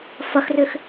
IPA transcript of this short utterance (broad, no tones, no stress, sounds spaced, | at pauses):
f ɐ x r ʏ x